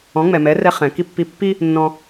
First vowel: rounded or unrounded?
rounded